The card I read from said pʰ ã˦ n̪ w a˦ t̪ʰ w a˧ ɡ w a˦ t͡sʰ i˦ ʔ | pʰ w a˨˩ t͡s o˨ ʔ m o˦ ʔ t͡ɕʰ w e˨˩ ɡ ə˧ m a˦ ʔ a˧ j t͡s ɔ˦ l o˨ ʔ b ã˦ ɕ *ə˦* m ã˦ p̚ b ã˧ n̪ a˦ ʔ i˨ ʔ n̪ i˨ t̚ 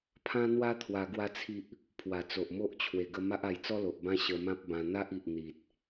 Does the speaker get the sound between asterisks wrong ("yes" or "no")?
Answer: yes